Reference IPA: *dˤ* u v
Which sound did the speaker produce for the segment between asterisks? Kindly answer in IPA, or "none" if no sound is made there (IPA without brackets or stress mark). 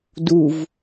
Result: d